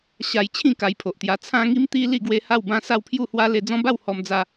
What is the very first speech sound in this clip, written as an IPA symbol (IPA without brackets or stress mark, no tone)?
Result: ɕ